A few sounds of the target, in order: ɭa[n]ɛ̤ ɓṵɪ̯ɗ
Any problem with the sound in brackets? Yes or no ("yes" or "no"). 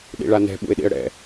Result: no